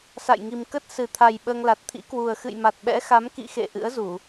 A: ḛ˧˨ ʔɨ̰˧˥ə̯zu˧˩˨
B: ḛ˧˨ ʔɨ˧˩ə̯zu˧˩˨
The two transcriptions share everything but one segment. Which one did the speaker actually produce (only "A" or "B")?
A